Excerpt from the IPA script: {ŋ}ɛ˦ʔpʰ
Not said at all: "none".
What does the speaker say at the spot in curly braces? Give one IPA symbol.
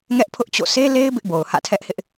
ŋ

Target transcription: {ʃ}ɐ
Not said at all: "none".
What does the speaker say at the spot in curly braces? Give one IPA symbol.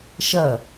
ʃ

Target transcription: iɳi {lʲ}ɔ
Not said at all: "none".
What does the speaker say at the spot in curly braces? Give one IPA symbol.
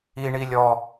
lʲ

